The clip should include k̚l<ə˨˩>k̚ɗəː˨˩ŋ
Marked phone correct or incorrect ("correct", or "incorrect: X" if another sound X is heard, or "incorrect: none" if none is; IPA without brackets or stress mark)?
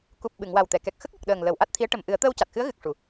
correct